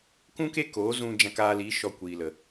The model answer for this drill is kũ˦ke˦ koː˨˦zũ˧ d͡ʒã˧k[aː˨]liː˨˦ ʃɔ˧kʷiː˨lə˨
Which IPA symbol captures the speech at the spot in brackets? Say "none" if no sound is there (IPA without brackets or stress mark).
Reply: aː˧